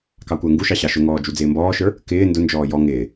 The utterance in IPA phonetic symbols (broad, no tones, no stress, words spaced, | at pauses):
kɑkʷəːŋɡuʃɑ ɕɑʃʊŋɔː d͡ʒud͡zɪːmbɔːʃə˞ | kɪː ndʊnd͡ʒɔː jɔ ŋɪː